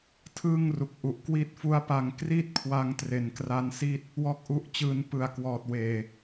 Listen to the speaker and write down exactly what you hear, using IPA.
tʰ ɯː˥˩ ŋ r u˨˩ k̚ ʔ u˨˩ ʔ k w i˦˥ t̚ f u˦˥ a̯ p a˧ ŋ k r i˥˩ t̚ kʰ w a˦˥ ŋ t r e˨˩ n k r a˦˥ n s i˥˩ t̚ | w ɔː˥˩ k̚ ʔ u˦˥ ʔ t͡ɕ ɯː˦˥ n p ɯ˨˩ a̯ k w ɔː˨˩ t̚ w eː˨˩

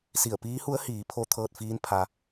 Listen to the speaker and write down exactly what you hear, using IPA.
s i˧˩ ə̯ p iː˧˥ h u˧˥ ə̯ h iː˩˧ pʰ o˧˥ t̪ʰ ɤː˧ t̚ f iː˧˥ n pʰ a˧

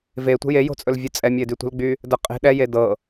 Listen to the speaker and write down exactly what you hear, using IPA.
v e tʷ ə̤ j e j o̤ t͡sʼ ɵ l vʲ ɵ t͡sʼ ɛ mʲ ə ɪ̯ d y tʷ ə̤ l ɡ͡b y | d ə qʼ e̤ ɗ ɛ j e d ɤ

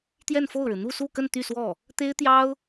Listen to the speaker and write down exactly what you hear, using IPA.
t̪ j ɛ˥˧ n f o˥˩ ʊ̯ ɻ ɻ̩˩ n̪ u˥˧ s u˥˧ k ə˥˧ n t̪ y˥˧ s w ɔ˥˩ | t̪ e˥ ɪ̯ t̪ j ɑ˥ ʊ̯

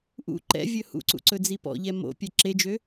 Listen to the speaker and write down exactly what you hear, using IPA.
ʔ ṵ ǃ ɛ̰ vʲ ɵ h ṵ ǀ ṵ ǀ ɵ d͡z i p ɔ̰ ʎ ɛ m o̰ pʲ ɛ ǁ e d͡ʒ ø

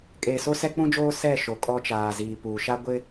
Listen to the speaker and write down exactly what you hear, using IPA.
kʼ eː˨ s o˦ s ɛ˦ k͡p ũ˦ d͡ʒ oː˦ s ɛ˦˨ ʃ o˨ kʼ ɔ˦ t͡ʃ aː˨ z iː˨ p uː˨ ʃ a˦ ɡʷ ɪ˦

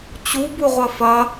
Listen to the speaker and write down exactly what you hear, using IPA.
t͡ɕ u b u ʁʷ ɐ f ɐ

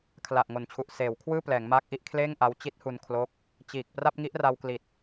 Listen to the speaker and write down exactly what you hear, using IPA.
kʰ l a˨˩ ʔ ŋ o˨˩ n t͡ɕʰ u˨˩ ʔ s eː˩˦ w kʰ w ɯː˥˩ p l ɛː˩˦ ŋ m aː˦˥ k̚ ʔ i˦˥ ʔ kʰ l eː˥˩ ŋ ʔ a˦˥ w t͡ɕ i˦˥ t̚ h u˧ n kʰ l o˦˥ k̚ | t͡ɕ iː˨˩ k̚ p r a˥˩ p̚ ŋ i˦˥ ʔ r a˧ w k l i˨˩ t̚

